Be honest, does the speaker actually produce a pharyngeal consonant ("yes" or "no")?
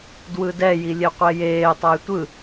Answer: no